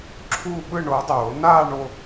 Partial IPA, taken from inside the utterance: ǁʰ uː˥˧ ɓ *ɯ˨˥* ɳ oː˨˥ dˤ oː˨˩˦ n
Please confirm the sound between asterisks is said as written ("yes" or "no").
no